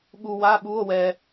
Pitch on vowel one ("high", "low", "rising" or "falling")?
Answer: low